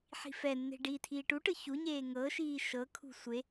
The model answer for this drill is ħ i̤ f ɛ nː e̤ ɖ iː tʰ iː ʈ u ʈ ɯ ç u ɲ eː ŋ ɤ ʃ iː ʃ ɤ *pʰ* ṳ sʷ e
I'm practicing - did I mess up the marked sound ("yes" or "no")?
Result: yes